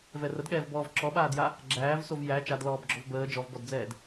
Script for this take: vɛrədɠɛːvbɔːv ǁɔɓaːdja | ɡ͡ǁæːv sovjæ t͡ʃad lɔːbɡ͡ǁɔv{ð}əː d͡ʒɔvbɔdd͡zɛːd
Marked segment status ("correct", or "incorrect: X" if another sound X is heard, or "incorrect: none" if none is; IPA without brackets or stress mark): incorrect: b